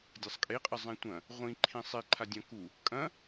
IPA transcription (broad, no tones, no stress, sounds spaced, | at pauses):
dʲ a sˤ kʼ e qʼ ɐ zˤ ẽ tʷ ɐ̃ | ʁʷ ĩ ǃʰ ĩ sˤ i ǃʰ a dʲ ɐ̃ k u | kʼ ɐ̃